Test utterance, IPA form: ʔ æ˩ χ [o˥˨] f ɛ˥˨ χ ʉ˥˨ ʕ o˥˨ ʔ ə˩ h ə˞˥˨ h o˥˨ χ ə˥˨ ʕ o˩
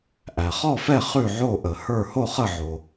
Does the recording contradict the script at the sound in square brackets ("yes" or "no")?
yes